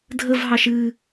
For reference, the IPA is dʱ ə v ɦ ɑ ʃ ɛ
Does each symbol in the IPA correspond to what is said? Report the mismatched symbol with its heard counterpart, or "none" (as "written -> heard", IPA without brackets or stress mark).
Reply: ɛ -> ɨ